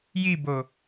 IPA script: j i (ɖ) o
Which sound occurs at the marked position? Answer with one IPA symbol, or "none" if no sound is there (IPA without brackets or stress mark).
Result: b